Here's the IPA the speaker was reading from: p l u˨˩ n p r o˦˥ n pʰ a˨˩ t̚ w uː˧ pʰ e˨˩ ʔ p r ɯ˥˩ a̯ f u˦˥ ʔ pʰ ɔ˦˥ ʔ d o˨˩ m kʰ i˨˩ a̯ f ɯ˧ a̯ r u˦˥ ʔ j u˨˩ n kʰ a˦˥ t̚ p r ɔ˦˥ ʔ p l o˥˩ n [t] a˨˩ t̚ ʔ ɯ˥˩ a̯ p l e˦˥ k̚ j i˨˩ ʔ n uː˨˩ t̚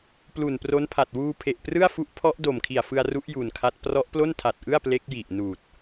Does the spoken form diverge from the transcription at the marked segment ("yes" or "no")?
yes